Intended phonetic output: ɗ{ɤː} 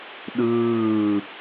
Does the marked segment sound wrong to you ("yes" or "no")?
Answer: yes